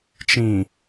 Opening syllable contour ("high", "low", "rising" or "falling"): low